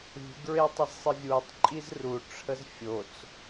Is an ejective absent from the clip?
no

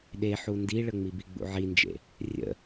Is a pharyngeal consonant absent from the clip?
no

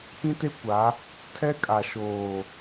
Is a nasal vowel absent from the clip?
no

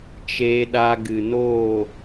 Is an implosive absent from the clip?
no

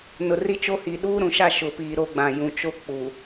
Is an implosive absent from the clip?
no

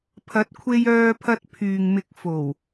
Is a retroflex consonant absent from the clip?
yes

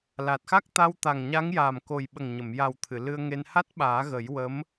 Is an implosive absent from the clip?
no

